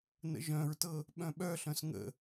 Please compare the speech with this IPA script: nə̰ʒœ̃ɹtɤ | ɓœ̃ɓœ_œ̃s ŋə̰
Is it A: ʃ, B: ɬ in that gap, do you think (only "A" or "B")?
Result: B